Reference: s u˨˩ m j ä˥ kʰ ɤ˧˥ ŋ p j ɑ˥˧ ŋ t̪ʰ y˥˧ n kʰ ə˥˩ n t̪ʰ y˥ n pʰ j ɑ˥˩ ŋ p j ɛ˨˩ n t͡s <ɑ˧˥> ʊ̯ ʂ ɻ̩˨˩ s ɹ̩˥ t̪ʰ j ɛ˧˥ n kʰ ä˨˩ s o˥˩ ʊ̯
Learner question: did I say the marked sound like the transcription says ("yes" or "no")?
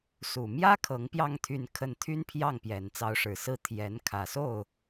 yes